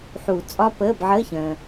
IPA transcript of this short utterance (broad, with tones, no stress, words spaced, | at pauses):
ħuː˨˩˦ t͡sʼɒ˦˥pəː˧˥˧b ʕəː˧˥˧çə̃ː˨